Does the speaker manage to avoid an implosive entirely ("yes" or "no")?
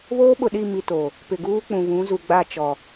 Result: no